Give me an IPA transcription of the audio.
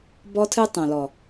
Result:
b ɔ˦ tʰ ɨ˦ tˤ õ˨ l ɔ˨

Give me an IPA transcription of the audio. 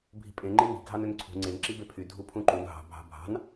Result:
bʱ i̤ pʼ ẽ ŋ͡ǃ e ŋ i̤ ɡʱ ɑ n ø n ǀʰ ṳ ŋ͡ǀ e n ǁ i b e pʰ y dʱ u pʰ ũ ǃ u n ɦ ɑ̤ bʱ ɑ̤ bʱ ɑ̤ n

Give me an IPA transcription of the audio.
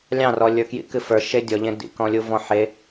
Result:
lʲ ɑ̃ r ɔ lʲ ə˞ k j ḭ k ɨ f ə˞ ʃ e dʲ ɔ ʎ ẽ d ḭ k ɔ̃ lʲ u v ɔ̃ ħ e

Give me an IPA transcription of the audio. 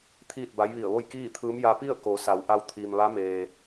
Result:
t̪ʰ iː˥˨ t̚ b a˧˥ j ʋ i˧˩ ə̯ ʋ o˥˨ j k iː˥˨ t̪ʰ ɯː˧˥ m j a˧ p i˥˨ ə̯ k o˩˧ s a˩˧ w ʔ a˧ w t̪ʰ iː˩ m ʋ a˧˥ m eː˩

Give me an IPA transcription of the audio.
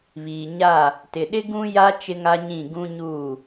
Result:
β iː˨ ɲ a˦˨ | t ɪ˨ ɗ ɪ˦ ɡ ũ˦ j a˦ t͡ʃ ɪ˦ ŋ a˦ ɲ ĩ˦˨ ɡ ũ˦ ɲ uː˦˨

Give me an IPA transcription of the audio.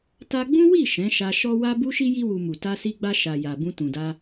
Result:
t a˧ ɡ͡b ũ˦ w i˦˨ ʃ ɛ̃˨˦ ʃ a˧ ʃ ɔ˦ w a˦ b u˦ ʃ i˦ j i˦ w u˧ m u˨ t a˧ s i˧ ɡ͡b a˧ ʃ a˨ j a˨ b ũ˧ t ũ˨ d a˧

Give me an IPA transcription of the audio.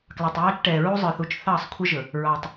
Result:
k l ɑ˨ tˤ j ɑː˦ t͡ʃ ʈ ɛː˨ ɹ u˦ zˤ ə˞˨ θ u˨ t͡ʃ θ ɑː˦˨ sˤ kʷʰ ə˦ ʒ ɵ˨ | ɹ ɑ˨ tˤ

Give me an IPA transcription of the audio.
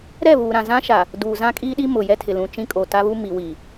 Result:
ɾ ɛ˦˨ β uː˨ ɾ ã˨ z ã˦ ʃ a˨ | d uː˨ z ã˦ kʼ i˦ ɗ i˦ m ʊ˨ j ɛ˦ tʰ ɪ˨ l ũ˨ t͡ʃ ĩ˦ kʼ o˨ t a˦ β u˦ m i˨ w i˨

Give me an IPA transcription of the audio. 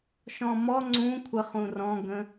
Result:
ʃ ɔ̃ m ɔ ŋ͡ǀ ũ kʷʰ ə χ ũ r ɔ̃ ɡ ə̃

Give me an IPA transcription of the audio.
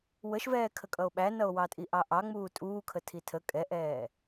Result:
w ə ʃ v ɛː kʰ ə kʼ ʌ o̯ ɓ æ n ʌ o̯ w ɑ tʼ i ʔ ɑ ʔ ɑ ŋ͡m uː tʼ uː kʰ ə tʰ i tʰ ə kʼ ɛ ʔ ɛː

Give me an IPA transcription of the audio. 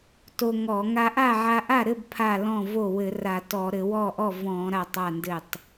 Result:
t o˧ ŋ ɔ˧˩˧ ŋ a˧ ʔ a˥˩ ʕ a˧ ʔ a˥˩ ɾ ɘ˥˩ b pʰ a˥˩ l ɔ̃˥˩ v o˥˩ w ɘ˧˩˧ r a˧˩˧ t ɔ˧˩˧ ɾ ɘ˧˩˧ w ɔ˥˩ ʔ ɔ˥˩ v ɔ̃˧˩˧ ɾ a˥˩ tˤ a˥˩ n d ɘ˥˩ tˤ

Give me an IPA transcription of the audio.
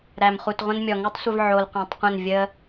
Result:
ɾ æ˨ m χ u˨ t ʁʷ ə̃˦ n mʲ ɔ˨ ŋ u˦ tˤ sʷ ə˧ v ʕ o˨ l qʷ ẽ˨ tˤ qʷ ə̃˦˨ n vʲ ə˦

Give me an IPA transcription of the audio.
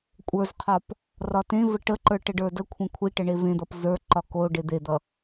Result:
kʷʼ ə˞ z qʰ ɒ p | r ɒ t ẽ v ə ʈ ə ǃ ə˞ ʈ ə ɖ ə˞ d ə kʷʰ ẽ kʷʰ i ʈ ə ɳ e v ẽ d̪ ʌ p z ə˞ ǃ ɒ k o ɖ e d̪ e d̪ ʌ

